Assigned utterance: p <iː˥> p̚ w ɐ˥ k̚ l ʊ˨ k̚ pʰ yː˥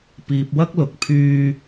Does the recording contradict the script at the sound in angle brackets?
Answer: yes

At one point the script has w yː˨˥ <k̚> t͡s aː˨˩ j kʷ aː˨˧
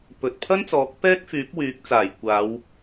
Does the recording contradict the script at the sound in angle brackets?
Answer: no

